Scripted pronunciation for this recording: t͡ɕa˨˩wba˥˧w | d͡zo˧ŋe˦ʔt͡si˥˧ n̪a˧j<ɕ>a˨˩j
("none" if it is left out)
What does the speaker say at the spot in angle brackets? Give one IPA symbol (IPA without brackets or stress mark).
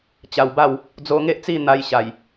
ɕ